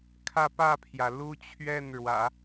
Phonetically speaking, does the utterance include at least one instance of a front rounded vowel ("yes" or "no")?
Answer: no